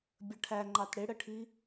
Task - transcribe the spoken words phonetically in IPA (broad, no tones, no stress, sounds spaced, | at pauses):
bʲ ə ʈʰ æ ŋ͡ǃ ɑ t ɽ ɪ ɽ ə ʈʰ i